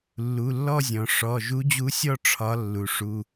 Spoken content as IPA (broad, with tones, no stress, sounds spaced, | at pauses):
lː u˩˧˩ lː ɔ˥˧ zʲ ɔ̃˩ ʂ ɔ˩˧˩ ʒ u˧˥ d͡ʑ u˧˥ sʲ ɔ˥˧ ʈ͡ʂʰ ɒ˧˥ lː u˩ ʂ u˩˧˩